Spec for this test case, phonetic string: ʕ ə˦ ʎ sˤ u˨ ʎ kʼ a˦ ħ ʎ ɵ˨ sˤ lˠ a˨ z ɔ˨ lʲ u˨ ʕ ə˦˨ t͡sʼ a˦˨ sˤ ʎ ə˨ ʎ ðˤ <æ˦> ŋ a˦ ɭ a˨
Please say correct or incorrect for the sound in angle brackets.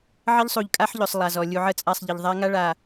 incorrect